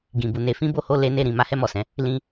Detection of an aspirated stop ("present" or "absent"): absent